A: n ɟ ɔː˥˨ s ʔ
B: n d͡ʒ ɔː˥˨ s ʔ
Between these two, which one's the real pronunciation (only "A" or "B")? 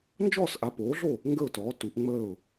B